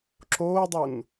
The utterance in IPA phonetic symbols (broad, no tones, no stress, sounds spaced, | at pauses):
ǁ oː dˤ u n